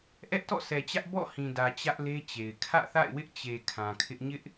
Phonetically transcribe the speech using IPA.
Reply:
ʔɛ˦ʔtɔ̰˦˨sʰɛ˨t͡ɕä˦ʔ bɔ̰˦˨ hĩ˨dä˨ t͡ɕä˦ʔle˦t͡ɕe˨ɪ̯ kʰä̰˦˨θa̰˦˨ɪ̯wɪ˦ʔ t͡ɕe˨ kʰã˨kʰɪ˦ʔ ɲɪ˦ʔ

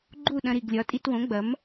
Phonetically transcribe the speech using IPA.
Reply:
ɡ͡ǃu˥˩ɗɐ̃˧ɾi˩ɡlʲɒ˩˥ tʼi˧twõ˩˥ɡ͡bɐ˩˥m

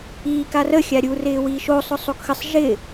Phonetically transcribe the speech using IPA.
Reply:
iːkarə xʲaɾʲu rɪːwiːʃo sˤʊsˤokxəsˤ ʒɪ

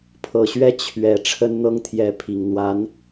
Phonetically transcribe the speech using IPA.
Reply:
pʰɤ˨˩ɕɥɛ˥˩ t͡ɕʰɥɛ˨˩ ʈ͡ʂʰə˥nn̪ɤ˥ŋt̪ʰjɛ˧˥pʰi˨˩ŋ n̪wa˧˥n

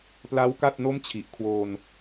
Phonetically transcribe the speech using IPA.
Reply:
pla˦˥w ka˥˩t̚ no˥˩mt͡ɕʰi˨˩ʔkʰwoː˧n

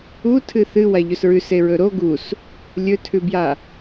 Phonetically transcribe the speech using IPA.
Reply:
utʰɨ θɨwaʎɵs ɹʉseɹɵ ɾo ɡus | lʲɵtʰʉbja

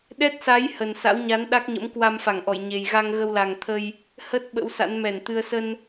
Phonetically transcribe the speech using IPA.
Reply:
ɗɛ˦˥t̚sa˨˦j hə˨˩nsa̰˧˥wɲa˨˦n ɗa˦˥k̚ɲə̰˧˥m kwa˧mfa˧˩ŋʔɔ˧˩jɲe˨˩j ɣa˧ŋɣə˧wla˨˩ŋ t̪ʰə˧j | hə˦˥t̚ ɓə̰˧˥wsa̰˧˥nmɛ˧˩nt̪ɨ˧ə̯ sə˧n

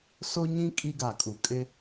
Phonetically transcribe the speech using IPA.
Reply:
so˦ɲĩ˦ kʼi˦ɡa˨kʼu˨ kʼɪ˦

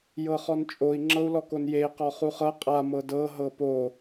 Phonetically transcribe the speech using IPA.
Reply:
jɤχɔnt͡ʃʼoi̯ ŋ͡ǁɤu̯lɔkonjei̯ qɔχuχɤ qʼa mɤdɤ ɦɤpo

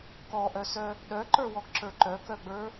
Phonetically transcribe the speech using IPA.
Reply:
kɔʔœsœ | ɗœǃə˞wɔɡǁə˞ ǃœkœɡ͡bə˞

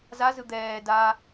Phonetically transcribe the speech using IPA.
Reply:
zazɯ d̪ɛː da

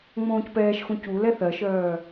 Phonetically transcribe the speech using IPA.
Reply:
ŋ͡mõːcpɛːʃxũ cu lɛθɜʃœː

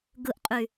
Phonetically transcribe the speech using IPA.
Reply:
ɡɯʔqʼy

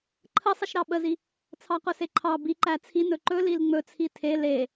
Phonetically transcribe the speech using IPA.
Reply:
ǃʰəsˤəʃɾɑ ɓəzi | t͡sʰɑqɵseǃʰɑ biǃæ t͡sʰi nɵǃɵ lilŋ͡mɵt͡sʰi tʰe le

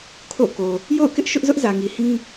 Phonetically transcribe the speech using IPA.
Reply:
kʰo̰˦˨ko˨ | jo̰˦˨ʊ̯kɪ˦ʔ ʃʊ˦ʔzʊ˦ʔ zä˨ŋi˨hĩ˦

